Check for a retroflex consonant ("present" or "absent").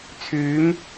absent